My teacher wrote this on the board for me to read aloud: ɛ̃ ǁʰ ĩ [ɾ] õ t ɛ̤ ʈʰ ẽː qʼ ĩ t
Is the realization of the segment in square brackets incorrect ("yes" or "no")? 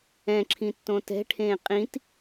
yes